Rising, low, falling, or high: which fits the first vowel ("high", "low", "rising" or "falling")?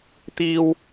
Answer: high